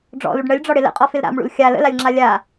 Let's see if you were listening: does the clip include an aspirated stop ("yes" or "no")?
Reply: no